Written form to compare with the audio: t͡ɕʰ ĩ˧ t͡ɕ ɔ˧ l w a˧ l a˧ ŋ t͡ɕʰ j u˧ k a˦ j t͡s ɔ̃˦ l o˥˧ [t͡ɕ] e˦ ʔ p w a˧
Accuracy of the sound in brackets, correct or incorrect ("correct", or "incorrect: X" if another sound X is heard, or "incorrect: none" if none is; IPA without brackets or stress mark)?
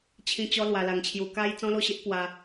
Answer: incorrect: ɕ